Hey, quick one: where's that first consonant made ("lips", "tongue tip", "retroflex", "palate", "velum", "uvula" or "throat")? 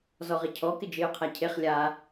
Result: tongue tip